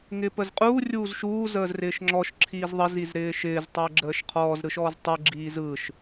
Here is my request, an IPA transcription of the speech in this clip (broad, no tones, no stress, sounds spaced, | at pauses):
ŋ ɪ p ə z qʼ uː rʲ uː z ʃ uː z əː z r ɪː ʃ ŋ͡ǁ ɔ ʃ ǁʰ iː z ðˤ ə z i z ɾ ɪː ʃ ɪː z tˤ əː ɡ͡ǁ əː ʃ qʰ ɔː z ɾ ɯ ʃ ɔː z tˤ ɯ ɡ͡ǁ iː z ɯ ʃ